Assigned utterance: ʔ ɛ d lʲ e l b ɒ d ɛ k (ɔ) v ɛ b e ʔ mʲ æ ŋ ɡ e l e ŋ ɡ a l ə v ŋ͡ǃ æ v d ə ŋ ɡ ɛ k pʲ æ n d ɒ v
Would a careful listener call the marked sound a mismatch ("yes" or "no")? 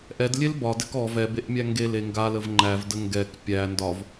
no